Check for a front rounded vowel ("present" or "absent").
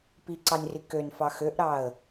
present